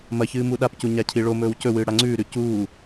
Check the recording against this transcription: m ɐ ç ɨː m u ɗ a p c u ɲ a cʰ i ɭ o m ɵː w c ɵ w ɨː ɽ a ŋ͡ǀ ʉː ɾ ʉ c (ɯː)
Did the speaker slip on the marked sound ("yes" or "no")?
yes